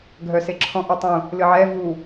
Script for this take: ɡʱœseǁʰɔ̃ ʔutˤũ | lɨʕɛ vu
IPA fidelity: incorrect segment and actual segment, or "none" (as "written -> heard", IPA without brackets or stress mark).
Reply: none